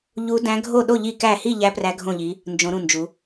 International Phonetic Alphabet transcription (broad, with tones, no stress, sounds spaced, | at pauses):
ʎ u˧˥ d æ̃˧˥ ɡʱ o˥˨ ɗ o˥˨ ʎ i˥˨ k æ˥˨ h i˥˨ ʎ æ˧˥ p r æ˧˥ ɡʱ õ˥˨ ʎ i˧˥ | n d͡ʒ õ˧˥ ɾ ũ˥˨ n d͡ʒ u˧˥